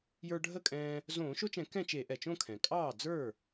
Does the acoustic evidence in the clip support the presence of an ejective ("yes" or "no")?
yes